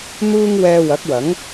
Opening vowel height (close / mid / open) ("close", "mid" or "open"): close